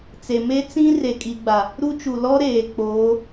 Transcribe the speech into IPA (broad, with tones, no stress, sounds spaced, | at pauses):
t͡s e˨ m e˦ t͡s ĩ˦ r e˨ kʼ i˨ ɡ͡b a˨ | ɾ u˦ t͡ʃ u˨ l ɔ˦ ɾ eː˨ k͡p oː˨˦